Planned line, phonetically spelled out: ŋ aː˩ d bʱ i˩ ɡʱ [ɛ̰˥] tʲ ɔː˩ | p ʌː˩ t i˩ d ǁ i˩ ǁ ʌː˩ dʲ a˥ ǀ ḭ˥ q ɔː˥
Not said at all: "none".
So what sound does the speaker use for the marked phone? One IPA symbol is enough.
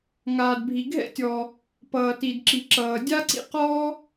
ɛ̰˥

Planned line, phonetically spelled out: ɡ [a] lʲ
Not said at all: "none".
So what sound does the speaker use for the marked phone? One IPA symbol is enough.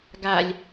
a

